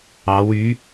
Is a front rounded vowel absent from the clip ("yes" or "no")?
no